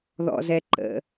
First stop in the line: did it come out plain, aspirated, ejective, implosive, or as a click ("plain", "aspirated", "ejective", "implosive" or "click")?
click